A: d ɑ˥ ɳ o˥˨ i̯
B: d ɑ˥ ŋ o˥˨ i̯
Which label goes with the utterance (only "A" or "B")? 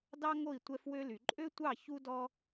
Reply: B